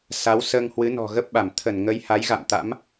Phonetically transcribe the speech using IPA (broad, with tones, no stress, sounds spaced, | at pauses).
s a˨˦ w s əː˧ ŋ h w ɨ˨˦ n ɔ̤˨˩ ɣ ə˦˥ p̚ ɓ a˧˩ m t̪ʰ ə˧˩ n ŋ ə˨˦ j h a˨˦ j ɣ a̰˧˨ m t̪ a̰˧˥ m